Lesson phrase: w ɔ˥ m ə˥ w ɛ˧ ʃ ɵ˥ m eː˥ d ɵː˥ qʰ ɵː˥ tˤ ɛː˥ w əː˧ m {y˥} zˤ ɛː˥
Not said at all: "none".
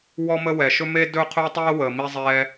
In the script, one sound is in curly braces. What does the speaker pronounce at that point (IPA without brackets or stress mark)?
i˥